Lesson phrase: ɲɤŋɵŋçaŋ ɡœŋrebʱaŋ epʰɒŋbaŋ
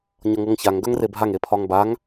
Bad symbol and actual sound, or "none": ɵ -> ɤ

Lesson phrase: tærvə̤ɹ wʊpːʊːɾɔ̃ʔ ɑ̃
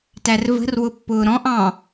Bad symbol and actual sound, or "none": ɹ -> r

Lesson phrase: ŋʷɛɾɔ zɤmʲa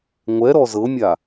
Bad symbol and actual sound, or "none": none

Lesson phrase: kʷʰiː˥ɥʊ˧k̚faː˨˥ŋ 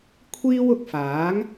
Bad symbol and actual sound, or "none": ɥ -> w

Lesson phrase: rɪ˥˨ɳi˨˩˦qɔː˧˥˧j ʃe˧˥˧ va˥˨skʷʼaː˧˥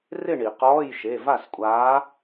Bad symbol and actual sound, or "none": none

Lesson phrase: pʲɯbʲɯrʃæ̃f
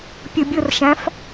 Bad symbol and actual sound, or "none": none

